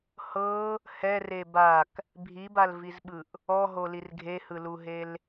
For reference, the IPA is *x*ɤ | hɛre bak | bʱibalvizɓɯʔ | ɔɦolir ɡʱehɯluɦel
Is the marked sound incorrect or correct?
incorrect